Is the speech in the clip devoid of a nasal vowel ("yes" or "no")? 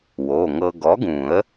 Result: no